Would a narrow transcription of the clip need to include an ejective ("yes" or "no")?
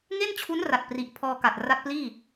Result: no